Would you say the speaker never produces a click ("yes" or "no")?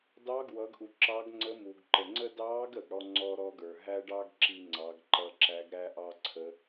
no